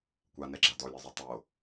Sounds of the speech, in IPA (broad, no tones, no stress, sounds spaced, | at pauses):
kʷ a n ɛ ɡ͡ǁ a d ɔ lʲ ɛ zˤ ø tˤ o